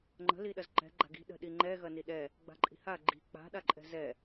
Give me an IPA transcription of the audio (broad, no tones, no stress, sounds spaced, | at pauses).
ŋ͡ǃ ə̤ l i ɗ ɐ z ǃ ɛ̤ ɡ͡ǃ a̤ ɡ i̤ ɗ ə̤ ɗ i ŋ͡ǃ ɛ ɣ ɐ n i ɗ ɛ | ɡ͡b a̤ ǃʼ i̤ h a ɡ͡ǃ i̤ k͡p a̤ ɗ a ǃʼ ɛ̤ z ɛ